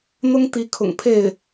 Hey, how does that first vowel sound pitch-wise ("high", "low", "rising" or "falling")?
high